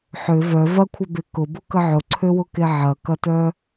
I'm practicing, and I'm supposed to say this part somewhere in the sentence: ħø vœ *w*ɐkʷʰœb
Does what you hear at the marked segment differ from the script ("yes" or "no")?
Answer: yes